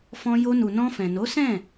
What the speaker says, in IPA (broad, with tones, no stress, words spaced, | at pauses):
fɔ̃˧jo˧nu˨ nɔ̃˧fɛ̃˨no˨˦sɛ̃˦˨